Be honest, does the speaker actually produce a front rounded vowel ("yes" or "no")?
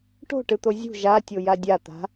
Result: no